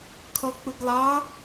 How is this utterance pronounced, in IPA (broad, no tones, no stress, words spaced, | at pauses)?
kʰɔk͡pʊɡlˠɑ